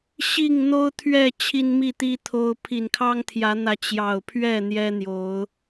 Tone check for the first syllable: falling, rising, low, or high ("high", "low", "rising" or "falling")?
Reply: falling